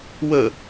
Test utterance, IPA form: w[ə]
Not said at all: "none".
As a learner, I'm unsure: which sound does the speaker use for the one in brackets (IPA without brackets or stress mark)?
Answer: ə